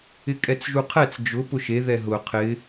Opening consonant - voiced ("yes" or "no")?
no